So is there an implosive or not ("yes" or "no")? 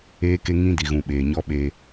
yes